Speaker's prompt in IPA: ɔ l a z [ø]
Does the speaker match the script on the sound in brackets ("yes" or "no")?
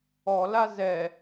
no